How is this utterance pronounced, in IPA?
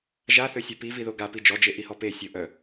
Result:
ʒaθøsʲɛ piviðo ɡapi d͡ʒɔd͡ʒeʔihɔ pesʲo ʔœ

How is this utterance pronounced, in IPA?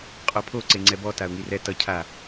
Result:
qʼopʰo ǀeŋ͡ǀɛbɔ taʊ̯ŋirɛ tʌ cʰa

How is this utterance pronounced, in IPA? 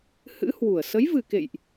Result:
hɨ̰˧˥ hwu˧˩ə̯ sə˨˦jvɨ˨˩kḛ˧˨jʔ

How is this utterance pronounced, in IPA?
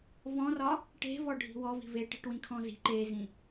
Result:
vɔ̃rɒ | ʈe̤vɔɖʱi̤ wɔvi̤ veʈi̤ʈwĩkʰɔ̃ zi̤ ǃezĩ

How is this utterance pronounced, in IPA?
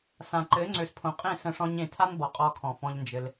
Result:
sã˨ǃɘ˨˦ ŋ͡ǀø˨spʰõ˨qʼẽ˦˨ sə̃˦˨ʂɔ̃˦ɲẽ˧ tʰa˦n bɔ˨qʼɔ˧kʰɔ̃˨fɔ̃˧ʎ nd͡ʒɘ˧l

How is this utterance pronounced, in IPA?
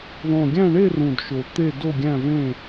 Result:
ðˤũ˨˩ɡʲæ̃˦˨ɳe˦˨rũ˨˩d ʃo˨˩t̪e˦˨ do˦˨ɡʲæ̃˦˨vẽ˦˨

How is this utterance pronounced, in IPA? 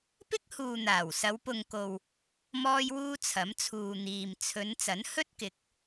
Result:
pɪ˥k̚huː˨n̪aː˨˩w sɐ˨˧wpʊ˨ŋko˨w | mɔː˧jwuː˧ t͡sʰɐ˨˥mt͡sʰuː˨n̪iː˨m t͡sʰɵ˨˧n t͡sɐ˨˥nhɵ˥t̚kɪ˨˥k̚

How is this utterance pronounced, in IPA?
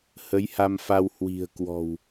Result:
hə˨˦jha˧mfa˧w hwi̤˨˩ə̯kwɔ̤˨˩w

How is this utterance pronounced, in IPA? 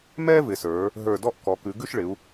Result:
mɛː˥vɪ˩˧sə˞˩˧ | ɦə˞˧˩dɔ˥˧ʔ kɔ˩˧kʉ˩˧ɡʉ˥˧ʃɭɪ˩˧u̯

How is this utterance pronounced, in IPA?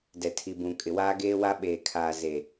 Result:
dɛ˨tʰi˨bũ˨ kʼɪ˨waː˦ɡeː˦wa˦ ɓeː˨kʰaː˨ ze˨

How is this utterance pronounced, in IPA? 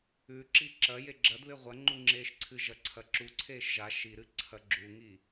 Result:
ʉǁi ǁɐje ɡ͡ǁɐdβe ʁʷɐŋ͡ǃu ŋ͡ǁeːʃǀʰɨʒɐ ǀʰɐǁuǀʰeːʃ ʒa ʃiɾɨ ǀʰɐɡ͡ǁuŋi

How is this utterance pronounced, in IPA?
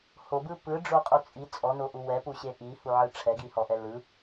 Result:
hobɯ pɯɖ͡ʐoqʼu t͡sʼi t͡sʼɔnoʔu wɛpuɕe ʔihuʕɯ ʈ͡ʂʰɛɡihɔʔɛ lɯ

